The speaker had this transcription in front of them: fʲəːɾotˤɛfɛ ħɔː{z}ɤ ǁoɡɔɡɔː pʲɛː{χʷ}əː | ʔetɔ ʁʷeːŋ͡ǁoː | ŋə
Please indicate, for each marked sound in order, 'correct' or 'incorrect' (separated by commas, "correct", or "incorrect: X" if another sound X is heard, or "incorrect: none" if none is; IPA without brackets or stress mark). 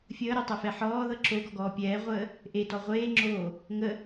incorrect: ð, incorrect: ʁʷ